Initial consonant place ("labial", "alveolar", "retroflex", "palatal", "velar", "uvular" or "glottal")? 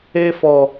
labial